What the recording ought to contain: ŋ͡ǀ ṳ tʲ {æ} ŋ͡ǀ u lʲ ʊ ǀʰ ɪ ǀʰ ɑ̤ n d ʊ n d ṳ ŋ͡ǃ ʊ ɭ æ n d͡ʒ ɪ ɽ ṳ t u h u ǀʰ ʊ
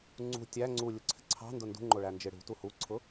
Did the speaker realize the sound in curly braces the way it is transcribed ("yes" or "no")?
yes